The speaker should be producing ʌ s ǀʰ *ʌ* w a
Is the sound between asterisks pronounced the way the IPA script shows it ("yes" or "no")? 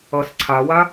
no